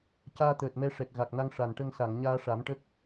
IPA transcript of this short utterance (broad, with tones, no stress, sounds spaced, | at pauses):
c aː˧ t̪ əː˨˩ t̚ m ɛ˧ ʂ ɛ˨˩ k̚ ɣ a˨˩ k̚ n a˧ ŋ ʂ a˨˩ n ʈ ə˧ ŋ s a˨˩˨ ŋ ɲ aː˧ ʂ a˨˩˦ m ʈ ə˦˥ k̚